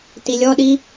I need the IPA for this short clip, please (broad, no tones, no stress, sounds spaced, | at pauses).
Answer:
t i lʲ ɔ ɗ i